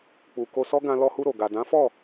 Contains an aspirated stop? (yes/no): no